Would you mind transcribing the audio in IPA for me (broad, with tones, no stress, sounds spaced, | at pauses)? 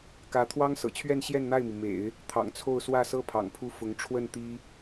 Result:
k ä˧˥ t̪ʰ w ɑ˥ ŋ s ɤ̰˨˩ t͡ɕʰ ɥ ɛ˥˧ n ɕ j ɛ˥˧ n n̪ a˥˩ ɪ̯ m i˩ m ḛ˨˩˦ ɪ̯ | t̪ʰ ɑ̰˨˩ ŋ t͡sʰ o˥˧ ʊ̯ s w ä˥˩ s ɤ˥ pʰ ɑ̰˨˩ ŋ pʰ u˥ f ʊ˧˥ ŋ ʈ͡ʂʰ w ə˥˩ n t̪ i˥